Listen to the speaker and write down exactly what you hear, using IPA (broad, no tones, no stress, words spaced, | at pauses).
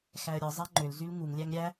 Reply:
xæə̯ɾʲɯ zˤæŋ͡ǃølzyl ŋuŋlʲæŋ ɾʲæ